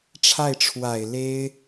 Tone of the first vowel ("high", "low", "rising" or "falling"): falling